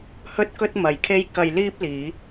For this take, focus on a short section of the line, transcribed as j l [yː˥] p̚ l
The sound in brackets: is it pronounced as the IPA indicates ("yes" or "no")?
no